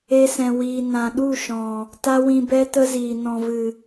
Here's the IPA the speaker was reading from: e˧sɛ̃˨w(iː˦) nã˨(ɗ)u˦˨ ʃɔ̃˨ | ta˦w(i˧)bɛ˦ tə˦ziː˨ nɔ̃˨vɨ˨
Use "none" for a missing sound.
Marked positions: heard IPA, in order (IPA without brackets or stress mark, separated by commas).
iː˨, ɗ, ĩ˧